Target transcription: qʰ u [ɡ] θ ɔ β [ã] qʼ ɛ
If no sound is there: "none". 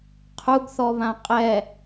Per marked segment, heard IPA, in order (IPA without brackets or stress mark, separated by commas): ɡ, ã